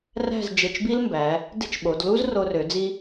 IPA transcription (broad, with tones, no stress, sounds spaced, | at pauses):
r æ̤˥˧ z d͡ʒ e˧˩ t͡ʃ b i˥ l m b æ˩˧ | d e̤˥ t͡ʃ ɓ o˩˧ d l u˥ z r o˧ r ø˩˧ d͡z i˧